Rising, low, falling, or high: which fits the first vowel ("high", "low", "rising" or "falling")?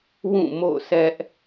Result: falling